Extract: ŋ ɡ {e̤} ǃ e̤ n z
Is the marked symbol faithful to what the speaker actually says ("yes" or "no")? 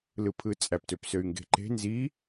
yes